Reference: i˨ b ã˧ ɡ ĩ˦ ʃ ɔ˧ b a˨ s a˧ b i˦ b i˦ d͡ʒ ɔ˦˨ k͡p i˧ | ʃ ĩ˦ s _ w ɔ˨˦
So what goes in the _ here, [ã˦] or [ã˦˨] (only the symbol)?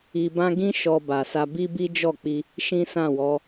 ã˦˨